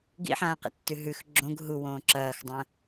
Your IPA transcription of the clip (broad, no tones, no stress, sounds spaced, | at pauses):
ɡ ḭ ħ ãː q ḛ tː ʉ ɦ ʉ x ɡ͡ǁ õ ɡ ɦ u w õː ǁ ɐː x dˤ ɐ̃